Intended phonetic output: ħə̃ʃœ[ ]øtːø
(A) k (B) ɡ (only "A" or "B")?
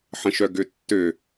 B